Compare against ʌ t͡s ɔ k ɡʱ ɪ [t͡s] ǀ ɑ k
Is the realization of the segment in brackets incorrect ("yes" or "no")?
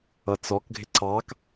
yes